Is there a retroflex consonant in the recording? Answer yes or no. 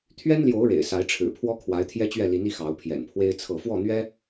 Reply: yes